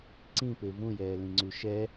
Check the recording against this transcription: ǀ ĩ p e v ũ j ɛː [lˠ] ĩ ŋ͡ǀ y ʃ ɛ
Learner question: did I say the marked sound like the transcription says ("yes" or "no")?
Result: no